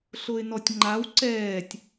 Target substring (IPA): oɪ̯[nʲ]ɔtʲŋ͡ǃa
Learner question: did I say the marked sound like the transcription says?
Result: no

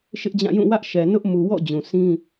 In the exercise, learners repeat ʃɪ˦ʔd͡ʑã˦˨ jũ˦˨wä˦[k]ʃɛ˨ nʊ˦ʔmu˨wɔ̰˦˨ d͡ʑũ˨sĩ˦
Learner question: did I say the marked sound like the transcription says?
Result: no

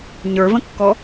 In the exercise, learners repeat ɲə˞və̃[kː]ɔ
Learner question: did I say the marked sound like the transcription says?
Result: yes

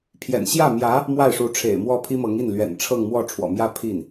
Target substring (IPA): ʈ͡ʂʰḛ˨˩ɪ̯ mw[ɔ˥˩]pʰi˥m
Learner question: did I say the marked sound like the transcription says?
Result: yes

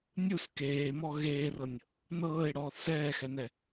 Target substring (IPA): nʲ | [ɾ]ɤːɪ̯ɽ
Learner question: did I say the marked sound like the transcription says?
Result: no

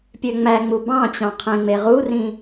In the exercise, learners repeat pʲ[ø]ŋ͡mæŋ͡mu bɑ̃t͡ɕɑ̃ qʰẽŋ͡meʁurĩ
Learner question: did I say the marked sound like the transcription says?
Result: yes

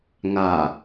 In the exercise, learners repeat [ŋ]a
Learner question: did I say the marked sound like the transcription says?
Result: yes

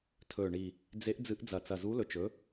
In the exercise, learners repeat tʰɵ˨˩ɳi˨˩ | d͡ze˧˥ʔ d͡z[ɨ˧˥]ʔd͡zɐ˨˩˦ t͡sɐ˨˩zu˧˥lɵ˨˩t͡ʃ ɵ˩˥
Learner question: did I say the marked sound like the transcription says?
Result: yes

